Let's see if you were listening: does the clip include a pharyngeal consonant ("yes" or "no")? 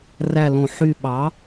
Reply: yes